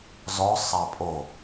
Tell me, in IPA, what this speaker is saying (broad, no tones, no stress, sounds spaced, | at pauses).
z ɔ sˤ a pʼ o